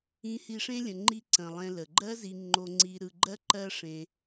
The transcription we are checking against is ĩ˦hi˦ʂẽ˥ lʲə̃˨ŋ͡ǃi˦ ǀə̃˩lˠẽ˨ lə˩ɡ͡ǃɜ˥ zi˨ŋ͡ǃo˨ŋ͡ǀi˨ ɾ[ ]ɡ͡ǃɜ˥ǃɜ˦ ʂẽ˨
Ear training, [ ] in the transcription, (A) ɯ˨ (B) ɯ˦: A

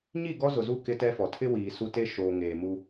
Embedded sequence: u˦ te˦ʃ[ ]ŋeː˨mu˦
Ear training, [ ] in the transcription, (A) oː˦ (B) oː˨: B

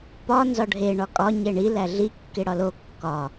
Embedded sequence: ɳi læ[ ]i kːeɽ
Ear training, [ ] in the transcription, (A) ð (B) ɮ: B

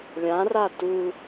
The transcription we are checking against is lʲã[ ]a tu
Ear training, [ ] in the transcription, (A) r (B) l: A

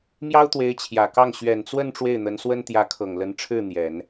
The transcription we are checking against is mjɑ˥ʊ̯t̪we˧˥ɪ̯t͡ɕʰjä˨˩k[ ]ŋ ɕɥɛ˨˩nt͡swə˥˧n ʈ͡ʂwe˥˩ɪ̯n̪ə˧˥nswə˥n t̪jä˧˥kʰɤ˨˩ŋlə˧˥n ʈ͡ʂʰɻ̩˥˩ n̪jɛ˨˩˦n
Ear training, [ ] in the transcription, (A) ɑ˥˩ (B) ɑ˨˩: A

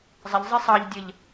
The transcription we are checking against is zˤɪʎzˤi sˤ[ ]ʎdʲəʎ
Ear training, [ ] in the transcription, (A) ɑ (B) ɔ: A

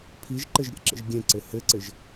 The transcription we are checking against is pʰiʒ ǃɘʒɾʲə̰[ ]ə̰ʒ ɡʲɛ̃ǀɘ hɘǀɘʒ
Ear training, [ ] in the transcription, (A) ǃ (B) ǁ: B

